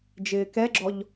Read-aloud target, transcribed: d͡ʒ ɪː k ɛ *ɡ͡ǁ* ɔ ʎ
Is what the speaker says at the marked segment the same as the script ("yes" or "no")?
yes